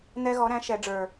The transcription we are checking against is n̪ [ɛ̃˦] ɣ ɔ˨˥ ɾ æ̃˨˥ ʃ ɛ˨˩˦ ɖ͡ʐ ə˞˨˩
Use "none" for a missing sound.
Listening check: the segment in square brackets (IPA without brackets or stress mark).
ɛ˦